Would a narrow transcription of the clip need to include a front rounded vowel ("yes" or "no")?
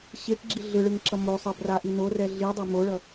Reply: no